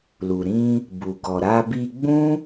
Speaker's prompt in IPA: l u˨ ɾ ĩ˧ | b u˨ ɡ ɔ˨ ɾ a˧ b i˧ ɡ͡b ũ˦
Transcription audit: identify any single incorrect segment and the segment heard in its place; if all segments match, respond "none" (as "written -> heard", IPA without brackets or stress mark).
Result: none